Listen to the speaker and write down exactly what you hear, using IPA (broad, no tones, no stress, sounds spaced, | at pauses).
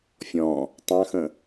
fʲ ɔ̃ | tˤ ɑ̃ x ə̃